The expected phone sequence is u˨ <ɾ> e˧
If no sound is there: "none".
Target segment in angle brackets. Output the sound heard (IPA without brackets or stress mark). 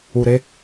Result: ɾ